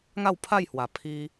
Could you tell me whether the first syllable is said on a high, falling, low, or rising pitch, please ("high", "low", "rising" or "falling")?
falling